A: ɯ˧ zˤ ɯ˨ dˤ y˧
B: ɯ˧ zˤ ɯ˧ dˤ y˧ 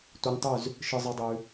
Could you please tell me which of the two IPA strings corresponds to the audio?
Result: B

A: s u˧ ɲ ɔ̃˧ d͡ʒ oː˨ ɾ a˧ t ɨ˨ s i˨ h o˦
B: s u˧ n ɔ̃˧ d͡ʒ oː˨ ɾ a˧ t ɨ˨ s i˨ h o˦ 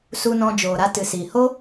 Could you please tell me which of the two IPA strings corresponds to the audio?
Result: B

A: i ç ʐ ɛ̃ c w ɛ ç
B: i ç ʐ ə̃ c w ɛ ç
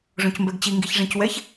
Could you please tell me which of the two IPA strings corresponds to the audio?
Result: A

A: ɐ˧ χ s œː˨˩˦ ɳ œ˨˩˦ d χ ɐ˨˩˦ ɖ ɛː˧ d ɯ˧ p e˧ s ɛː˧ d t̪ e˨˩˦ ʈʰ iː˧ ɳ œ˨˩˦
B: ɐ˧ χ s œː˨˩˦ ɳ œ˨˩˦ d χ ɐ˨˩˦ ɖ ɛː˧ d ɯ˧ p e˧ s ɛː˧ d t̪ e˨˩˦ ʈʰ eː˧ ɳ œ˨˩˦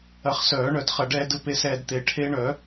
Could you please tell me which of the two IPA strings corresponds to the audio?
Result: B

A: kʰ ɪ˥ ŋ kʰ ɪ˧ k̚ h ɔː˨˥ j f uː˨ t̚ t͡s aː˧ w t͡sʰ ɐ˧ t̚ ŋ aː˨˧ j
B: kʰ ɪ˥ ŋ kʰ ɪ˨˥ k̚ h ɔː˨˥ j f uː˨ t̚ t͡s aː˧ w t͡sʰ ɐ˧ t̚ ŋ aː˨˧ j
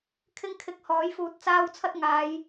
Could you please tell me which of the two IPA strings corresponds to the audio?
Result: A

